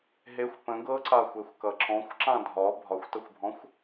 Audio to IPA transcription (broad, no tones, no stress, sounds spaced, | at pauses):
ɦ e xʷ p ə̃ ɡ ɤ ǀ a xʷ e xʷ k ʌ ǁ ɔ̃ xʷ ǁ ã dʱ ɒ bʱ ɒ xʷ t ʌ xʷ bʱ ɔ̃ xʷ